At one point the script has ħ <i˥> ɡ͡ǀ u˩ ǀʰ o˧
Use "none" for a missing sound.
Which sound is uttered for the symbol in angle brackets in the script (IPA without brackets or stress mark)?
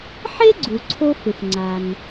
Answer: e˥